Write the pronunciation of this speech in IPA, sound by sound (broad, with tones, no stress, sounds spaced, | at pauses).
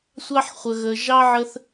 sʷ ɑ˦ ħ χʷ ə˧ ɣ ə˧ ʒ ɑ˦ ʕ ə˦ θ